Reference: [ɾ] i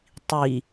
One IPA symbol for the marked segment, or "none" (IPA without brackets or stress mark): tˤ